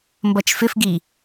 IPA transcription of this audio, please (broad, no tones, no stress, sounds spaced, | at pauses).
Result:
m b ʌ t͡ʃ f ɪ f ɡ i